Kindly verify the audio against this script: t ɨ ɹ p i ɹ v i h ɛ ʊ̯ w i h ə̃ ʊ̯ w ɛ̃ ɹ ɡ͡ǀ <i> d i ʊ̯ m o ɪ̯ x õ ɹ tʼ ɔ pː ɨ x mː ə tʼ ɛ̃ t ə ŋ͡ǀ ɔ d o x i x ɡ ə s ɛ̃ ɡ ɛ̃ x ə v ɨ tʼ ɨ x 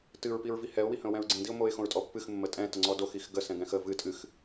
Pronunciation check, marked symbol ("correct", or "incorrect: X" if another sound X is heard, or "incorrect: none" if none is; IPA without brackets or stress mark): incorrect: ĩ